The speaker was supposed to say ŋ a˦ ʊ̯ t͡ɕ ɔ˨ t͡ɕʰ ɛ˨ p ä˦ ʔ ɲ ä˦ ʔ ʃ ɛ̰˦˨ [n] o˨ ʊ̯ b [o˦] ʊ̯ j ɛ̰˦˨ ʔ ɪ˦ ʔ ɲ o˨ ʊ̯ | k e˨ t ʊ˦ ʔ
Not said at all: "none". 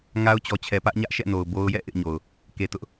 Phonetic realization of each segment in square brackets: n, o˦

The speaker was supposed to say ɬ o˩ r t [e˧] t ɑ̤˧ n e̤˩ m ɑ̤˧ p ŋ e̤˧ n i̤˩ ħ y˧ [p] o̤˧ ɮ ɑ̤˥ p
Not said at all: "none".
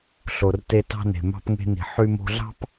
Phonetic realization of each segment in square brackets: e˧, m

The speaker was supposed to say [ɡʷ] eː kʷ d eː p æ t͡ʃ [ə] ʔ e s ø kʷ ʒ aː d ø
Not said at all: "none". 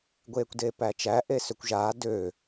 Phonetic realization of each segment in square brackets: ɡʷ, æ

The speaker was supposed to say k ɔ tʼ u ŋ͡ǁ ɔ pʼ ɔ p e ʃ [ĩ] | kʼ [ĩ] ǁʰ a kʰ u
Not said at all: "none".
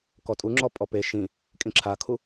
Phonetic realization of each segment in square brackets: ĩ, ĩ

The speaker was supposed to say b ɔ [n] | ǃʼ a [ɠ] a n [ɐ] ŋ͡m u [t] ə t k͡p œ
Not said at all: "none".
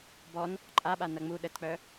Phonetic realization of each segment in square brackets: n, ɓ, ɐ, ɗ

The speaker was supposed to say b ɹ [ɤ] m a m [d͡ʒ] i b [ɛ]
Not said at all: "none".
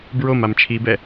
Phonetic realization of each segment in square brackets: o, t͡ʃʰ, ɛ

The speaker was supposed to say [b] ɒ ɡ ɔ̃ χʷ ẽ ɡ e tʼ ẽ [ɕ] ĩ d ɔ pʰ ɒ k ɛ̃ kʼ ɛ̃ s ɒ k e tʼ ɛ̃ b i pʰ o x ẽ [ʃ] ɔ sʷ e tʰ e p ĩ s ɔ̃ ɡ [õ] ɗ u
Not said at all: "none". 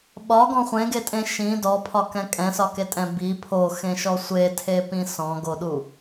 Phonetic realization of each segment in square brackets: ɓ, ʃ, ʃ, o

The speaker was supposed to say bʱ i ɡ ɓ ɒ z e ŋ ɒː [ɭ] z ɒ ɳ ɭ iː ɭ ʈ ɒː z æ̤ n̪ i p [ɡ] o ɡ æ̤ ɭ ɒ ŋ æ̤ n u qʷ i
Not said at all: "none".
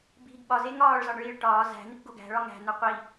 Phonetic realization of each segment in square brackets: ɭ, ɡ

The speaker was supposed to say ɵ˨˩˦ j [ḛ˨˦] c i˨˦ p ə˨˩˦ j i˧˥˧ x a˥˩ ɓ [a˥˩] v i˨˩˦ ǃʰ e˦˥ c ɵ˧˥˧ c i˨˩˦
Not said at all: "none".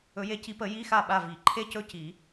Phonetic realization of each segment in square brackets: e˨˦, a˥˩

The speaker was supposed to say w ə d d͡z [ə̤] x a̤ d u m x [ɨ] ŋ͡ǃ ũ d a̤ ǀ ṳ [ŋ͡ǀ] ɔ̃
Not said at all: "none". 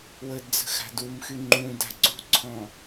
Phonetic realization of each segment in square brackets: ə̤, y, ǀʰ

